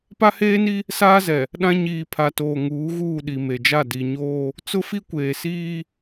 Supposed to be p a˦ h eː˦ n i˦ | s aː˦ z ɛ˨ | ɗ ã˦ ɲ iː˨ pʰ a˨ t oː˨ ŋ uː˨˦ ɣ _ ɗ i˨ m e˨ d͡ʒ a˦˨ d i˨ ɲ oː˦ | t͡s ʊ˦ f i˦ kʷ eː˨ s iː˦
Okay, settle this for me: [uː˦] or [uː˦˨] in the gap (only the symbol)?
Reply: uː˦˨